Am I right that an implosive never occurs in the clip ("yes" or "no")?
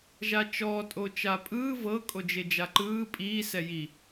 yes